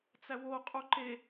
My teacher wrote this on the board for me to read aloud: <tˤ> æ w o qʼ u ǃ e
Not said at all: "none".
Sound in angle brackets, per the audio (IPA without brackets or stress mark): t͡s